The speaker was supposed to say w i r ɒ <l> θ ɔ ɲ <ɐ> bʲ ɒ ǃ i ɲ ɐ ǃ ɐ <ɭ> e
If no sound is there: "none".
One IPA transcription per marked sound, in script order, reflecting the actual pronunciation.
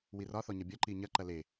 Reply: none, ɐ, l

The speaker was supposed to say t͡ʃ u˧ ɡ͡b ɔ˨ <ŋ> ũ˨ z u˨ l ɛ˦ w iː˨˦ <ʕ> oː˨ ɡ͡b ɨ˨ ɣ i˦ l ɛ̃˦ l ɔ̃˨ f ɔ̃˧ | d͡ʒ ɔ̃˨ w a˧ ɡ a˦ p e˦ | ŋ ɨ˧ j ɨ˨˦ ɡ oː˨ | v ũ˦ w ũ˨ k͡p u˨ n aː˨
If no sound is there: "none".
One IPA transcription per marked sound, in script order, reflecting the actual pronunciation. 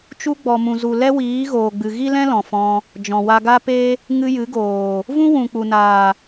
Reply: m, ɣ

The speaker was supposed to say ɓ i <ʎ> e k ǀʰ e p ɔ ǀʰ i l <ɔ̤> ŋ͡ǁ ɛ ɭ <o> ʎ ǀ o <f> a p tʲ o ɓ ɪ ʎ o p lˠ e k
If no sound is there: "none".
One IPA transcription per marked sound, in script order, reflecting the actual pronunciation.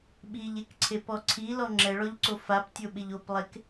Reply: ʎ, ɔ, ɔ, f

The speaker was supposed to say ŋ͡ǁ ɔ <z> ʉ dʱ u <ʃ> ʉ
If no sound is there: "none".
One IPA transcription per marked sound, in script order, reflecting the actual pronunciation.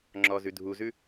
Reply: z, z

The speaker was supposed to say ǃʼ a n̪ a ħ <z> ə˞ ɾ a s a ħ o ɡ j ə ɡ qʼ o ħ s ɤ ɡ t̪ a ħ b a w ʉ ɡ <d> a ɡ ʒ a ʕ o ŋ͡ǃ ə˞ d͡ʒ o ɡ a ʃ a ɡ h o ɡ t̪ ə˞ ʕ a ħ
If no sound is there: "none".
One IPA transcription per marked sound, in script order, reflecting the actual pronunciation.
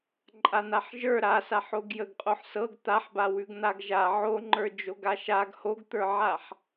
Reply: ʒ, n̪

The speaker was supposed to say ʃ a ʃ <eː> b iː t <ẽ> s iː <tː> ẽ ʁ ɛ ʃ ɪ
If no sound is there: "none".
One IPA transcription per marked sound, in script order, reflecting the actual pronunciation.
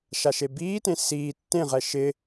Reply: e, ẽ, tː

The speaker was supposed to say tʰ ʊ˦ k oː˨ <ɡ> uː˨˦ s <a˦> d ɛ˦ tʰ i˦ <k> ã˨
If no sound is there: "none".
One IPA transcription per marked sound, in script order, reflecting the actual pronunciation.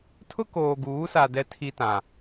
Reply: ɡ, a˨, t

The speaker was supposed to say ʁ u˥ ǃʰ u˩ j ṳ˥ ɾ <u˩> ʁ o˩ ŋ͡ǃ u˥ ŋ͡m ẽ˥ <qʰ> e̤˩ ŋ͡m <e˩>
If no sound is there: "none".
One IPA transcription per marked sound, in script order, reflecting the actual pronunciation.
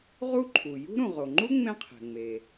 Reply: ũ˩, qʰ, e˩

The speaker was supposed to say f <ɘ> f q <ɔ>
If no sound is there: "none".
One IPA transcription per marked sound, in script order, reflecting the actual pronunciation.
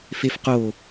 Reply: e, o

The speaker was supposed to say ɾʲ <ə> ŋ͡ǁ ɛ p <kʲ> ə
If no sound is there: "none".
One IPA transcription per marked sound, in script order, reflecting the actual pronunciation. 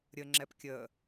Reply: ə, kʲ

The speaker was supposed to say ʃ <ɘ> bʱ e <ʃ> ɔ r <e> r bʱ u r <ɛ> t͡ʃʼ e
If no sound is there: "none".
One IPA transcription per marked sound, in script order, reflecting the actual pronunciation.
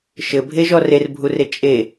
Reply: ɘ, ʒ, e, e

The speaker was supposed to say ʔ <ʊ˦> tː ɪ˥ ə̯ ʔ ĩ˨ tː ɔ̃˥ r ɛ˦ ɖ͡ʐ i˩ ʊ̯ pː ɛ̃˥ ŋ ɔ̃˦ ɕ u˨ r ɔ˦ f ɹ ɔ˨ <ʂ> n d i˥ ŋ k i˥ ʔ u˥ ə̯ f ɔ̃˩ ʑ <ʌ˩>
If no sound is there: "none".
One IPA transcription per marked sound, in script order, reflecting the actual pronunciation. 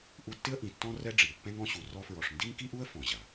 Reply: u˦, ʂ, a˩

